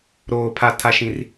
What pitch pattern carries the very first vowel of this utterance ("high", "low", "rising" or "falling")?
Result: low